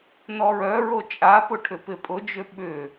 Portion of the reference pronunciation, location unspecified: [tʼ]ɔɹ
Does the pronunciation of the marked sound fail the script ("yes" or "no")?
yes